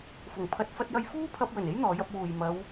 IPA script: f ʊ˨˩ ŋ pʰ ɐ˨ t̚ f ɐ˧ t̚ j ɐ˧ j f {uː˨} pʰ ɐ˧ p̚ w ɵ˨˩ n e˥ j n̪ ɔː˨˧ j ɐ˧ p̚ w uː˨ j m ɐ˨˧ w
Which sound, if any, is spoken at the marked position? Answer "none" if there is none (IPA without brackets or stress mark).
uː˥